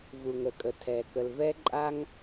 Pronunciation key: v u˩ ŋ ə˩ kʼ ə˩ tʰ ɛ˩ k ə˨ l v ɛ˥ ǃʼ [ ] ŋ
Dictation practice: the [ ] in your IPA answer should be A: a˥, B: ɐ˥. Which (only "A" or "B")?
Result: A